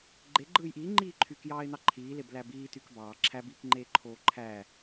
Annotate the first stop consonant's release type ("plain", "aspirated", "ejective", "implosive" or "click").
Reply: click